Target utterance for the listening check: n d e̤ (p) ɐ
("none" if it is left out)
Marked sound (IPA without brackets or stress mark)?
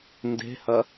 h